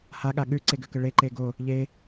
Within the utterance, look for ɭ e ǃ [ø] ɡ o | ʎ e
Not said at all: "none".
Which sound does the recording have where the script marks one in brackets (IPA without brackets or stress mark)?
e